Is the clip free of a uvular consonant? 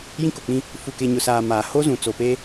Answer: yes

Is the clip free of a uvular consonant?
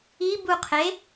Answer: no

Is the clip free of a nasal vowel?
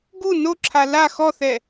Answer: yes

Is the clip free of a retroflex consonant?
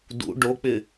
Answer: no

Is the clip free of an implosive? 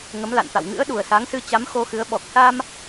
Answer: no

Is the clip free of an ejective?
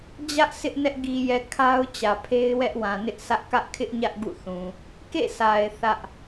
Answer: yes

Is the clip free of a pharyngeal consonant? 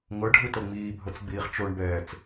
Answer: yes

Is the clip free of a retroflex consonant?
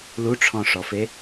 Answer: no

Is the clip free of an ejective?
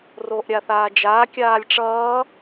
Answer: yes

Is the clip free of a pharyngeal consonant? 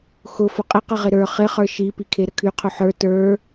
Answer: no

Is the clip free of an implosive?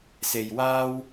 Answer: yes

